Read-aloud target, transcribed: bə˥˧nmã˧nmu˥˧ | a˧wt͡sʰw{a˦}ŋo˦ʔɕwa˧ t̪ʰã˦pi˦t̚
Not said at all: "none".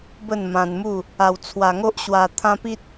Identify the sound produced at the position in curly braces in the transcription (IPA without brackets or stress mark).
a˧